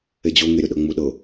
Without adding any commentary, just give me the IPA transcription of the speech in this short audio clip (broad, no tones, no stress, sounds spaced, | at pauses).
e d͡ʑ o ŋ e ɾʲ o ɗ ɤ ŋ͡m u ɗ ɤ